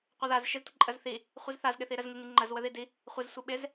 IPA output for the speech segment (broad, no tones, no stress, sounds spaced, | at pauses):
qʷ ə ð a z ʃ ɪ z tʷ ɪ ǃʼ ə z θ i | χʷ i z θ a z ɠ ɪ θ i ɾ ə z ŋ i ŋ i ŋ͡ǃ ə z w ə ð i d i | χʷ ɪ z sʷ i ɓ ɪ z